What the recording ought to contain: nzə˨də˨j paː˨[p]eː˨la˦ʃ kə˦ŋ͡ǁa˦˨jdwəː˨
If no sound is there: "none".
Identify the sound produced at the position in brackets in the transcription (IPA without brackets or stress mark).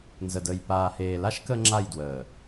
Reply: h